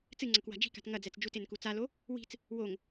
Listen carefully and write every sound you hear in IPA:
t͡s ɨ ŋ͡ǀ ɐ k w a̤ d͡ʒ i̤ k a̤ t ŋ ɐ d͡z ɛ t͡s d͡ʒ u t e n k u t͡s a l o | w i̤ t͡s | w o ŋ

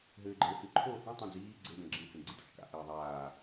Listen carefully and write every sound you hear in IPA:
ɦ ɘː ɡ͡ǃ ɘː h ɨ ǃʰ oː h ĩ tˤ ẽ d͡z iː ɡ͡ǀ ɘ d ɐ̃ ɡ͡ǁ ĩ h ẽ ɡ͡ǀ i d ɔ̰ t͡ʃ k a̰ ʔ ɘː ðˤ aː

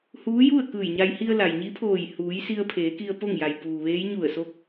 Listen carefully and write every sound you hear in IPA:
h uː˧˥ j u˥˨ ə̯ k ɯː˧˩ j ɲ a˧ j h i˧ ə̯ l a˩ j ɲ i˧˥ pʰ oː˧˩ j h uː˩˧ j s i˧ ə̯ pʰ eː˩˧ k i˧ ə̯ p o˥˨ ŋ j a˩ j p uː˩ ʋ eː˧˥ j ɲ u˧˩ ə̯ s o˧ k̚

